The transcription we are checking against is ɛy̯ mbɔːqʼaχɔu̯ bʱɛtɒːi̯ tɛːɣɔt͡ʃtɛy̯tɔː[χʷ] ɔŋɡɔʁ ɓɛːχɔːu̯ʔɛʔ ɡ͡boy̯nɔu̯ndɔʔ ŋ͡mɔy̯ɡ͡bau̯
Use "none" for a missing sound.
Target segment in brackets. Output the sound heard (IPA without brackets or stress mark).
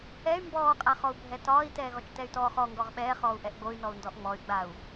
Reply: χ